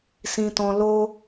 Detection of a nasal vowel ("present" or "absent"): present